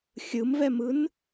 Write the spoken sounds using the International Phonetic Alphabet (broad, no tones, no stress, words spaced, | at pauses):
xʲɯmvɛmɯn